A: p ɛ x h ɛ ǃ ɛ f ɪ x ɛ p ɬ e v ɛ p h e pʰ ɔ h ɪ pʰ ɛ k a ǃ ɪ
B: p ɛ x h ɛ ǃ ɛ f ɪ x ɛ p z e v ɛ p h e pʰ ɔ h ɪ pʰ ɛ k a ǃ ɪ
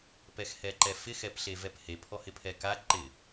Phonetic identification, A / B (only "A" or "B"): A